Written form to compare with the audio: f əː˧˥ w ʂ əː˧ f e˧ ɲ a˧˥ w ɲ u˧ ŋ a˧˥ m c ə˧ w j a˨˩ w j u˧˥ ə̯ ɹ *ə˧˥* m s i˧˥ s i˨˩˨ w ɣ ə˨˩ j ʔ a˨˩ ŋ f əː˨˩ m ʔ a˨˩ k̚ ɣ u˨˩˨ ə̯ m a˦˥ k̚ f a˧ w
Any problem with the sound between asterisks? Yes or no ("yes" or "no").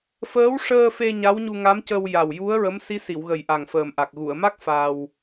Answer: no